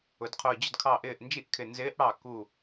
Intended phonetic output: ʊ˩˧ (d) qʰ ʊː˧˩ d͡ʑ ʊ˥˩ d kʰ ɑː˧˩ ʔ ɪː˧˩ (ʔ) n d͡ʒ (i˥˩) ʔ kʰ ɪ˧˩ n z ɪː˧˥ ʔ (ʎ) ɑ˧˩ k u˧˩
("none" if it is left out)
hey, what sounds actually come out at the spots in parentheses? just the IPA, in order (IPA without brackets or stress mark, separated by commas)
d, ʔ, i˥˩, ɽ